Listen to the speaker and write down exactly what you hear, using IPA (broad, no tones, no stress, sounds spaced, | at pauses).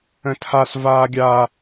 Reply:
ə̃ tʰ a s v aː ɡʲ aː